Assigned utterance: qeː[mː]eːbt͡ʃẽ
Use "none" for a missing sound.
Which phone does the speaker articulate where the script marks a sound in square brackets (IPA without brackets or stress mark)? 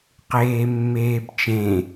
mː